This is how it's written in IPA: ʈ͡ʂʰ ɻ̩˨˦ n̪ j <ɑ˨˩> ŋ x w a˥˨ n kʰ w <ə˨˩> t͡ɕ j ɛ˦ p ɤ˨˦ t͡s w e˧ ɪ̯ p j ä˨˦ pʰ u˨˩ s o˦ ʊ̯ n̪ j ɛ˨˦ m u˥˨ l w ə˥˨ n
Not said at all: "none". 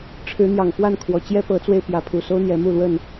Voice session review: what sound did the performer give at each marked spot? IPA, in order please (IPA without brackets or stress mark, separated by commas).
ɑ˨˩, ɔ˨˩